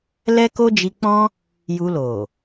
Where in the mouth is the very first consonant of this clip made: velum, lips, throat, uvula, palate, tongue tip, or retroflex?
tongue tip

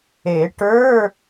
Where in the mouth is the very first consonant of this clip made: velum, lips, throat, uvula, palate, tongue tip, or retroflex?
retroflex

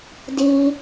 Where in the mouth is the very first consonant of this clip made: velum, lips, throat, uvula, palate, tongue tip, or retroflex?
tongue tip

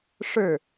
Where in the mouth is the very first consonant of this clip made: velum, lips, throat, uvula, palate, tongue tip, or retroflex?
retroflex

